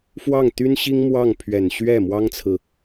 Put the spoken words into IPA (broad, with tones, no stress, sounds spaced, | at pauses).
f w ɑ˥˩ ŋ t̪ y˥ n ɕ i˥ ŋ m w ɑ˥˩ ŋ pʰ ɥ ɛ˨˩ n ɕ ɥ ɛ˥˩ m w ɑ˥ ŋ t͡sʰ ɹ̩˨